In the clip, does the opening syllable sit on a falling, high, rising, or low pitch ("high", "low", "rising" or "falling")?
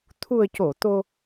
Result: low